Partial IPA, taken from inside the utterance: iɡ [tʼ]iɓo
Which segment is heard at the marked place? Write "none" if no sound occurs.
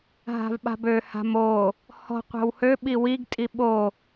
tʼ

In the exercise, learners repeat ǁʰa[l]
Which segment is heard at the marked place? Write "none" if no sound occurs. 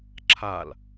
l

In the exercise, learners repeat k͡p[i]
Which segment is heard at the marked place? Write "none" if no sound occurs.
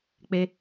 e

